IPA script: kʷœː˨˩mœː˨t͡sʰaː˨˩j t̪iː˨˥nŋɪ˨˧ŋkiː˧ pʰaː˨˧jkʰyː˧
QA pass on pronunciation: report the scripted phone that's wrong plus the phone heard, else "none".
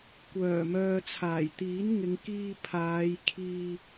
yː˧ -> iː˧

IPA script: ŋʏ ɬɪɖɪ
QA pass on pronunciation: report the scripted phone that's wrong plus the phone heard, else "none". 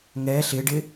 ʏ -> ɛ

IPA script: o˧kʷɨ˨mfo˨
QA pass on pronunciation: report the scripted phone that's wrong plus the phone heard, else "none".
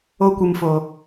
none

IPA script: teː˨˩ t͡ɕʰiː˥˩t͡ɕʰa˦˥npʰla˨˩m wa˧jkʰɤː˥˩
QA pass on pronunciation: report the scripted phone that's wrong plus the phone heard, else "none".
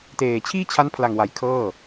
m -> ŋ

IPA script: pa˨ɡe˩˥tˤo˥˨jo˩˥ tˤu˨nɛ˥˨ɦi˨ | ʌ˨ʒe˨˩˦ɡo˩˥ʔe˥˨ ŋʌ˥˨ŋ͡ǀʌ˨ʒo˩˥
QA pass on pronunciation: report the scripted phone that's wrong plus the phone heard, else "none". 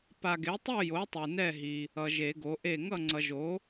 none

